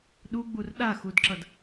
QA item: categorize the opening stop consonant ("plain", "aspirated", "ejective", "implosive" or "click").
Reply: implosive